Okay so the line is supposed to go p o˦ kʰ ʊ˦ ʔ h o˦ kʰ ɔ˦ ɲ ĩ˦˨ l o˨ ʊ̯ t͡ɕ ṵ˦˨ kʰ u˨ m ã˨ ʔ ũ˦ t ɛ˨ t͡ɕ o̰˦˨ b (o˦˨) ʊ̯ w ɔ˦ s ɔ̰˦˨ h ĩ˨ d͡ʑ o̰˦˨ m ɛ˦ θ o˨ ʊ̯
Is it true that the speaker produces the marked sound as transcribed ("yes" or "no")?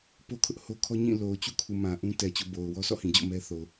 no